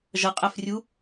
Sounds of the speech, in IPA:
ʒ ʌ qʼ æ f rʲ u

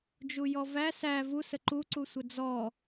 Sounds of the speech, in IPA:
d͡ʒ u j ɔ v æ s æ v u s ə ǃ u ǀ u sʷ ə d͡z ɔ

